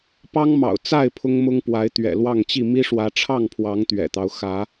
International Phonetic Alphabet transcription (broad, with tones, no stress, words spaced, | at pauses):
pɑ˦ŋmɑ̰˨˩ʊ̯ t͡sa˥˨ɪ̯ pʰʊ˦ŋmʊ˦ŋpwa˨˦ɪ̯ t̪ɥɛ̰˨˩lwɑ˥˨ŋt͡ɕi˥˨ mi˦ʂwä˨˦ ʈ͡ʂʰɑ˥˨ŋpʰwɑ˨˦ŋ t̪ɥɛ̰˨˩t̪ɑ˦ʊ̯ xä˨˦